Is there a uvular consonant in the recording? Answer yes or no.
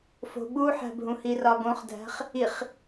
yes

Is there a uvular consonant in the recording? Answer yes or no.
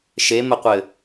yes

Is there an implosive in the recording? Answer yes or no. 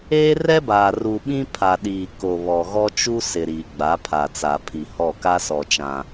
yes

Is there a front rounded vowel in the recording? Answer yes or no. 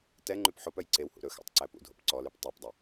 yes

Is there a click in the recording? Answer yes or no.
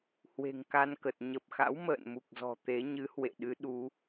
no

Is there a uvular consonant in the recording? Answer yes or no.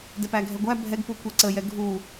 no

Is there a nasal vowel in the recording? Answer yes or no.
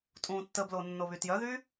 yes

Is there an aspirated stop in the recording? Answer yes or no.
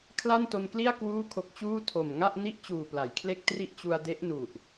yes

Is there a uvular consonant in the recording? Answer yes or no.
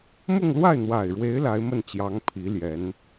no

